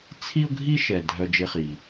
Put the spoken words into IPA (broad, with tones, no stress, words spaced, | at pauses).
t͡sʰi˥ʊ̯ɡʱi˥ʃɛ˩ dʱœ˧ d͡ʒe˧χi˩